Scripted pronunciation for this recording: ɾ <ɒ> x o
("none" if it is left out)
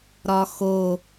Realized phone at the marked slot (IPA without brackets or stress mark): ɒ